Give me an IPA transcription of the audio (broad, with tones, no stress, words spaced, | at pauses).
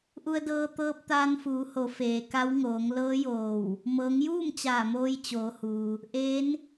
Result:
ʔu˧ə̯dɤː˧ t̪ɤː˧p̚t̪aː˧nfuː˩˧ho˩˧ feː˩ka˧˥wŋoː˩˧ŋ lɤː˧˥joː˧˩w | mɤː˩˧ŋjuː˥˨m t͡ɕaː˧˩moː˧j t͡ɕoː˩˧huː˩ | ʔeː˧˥n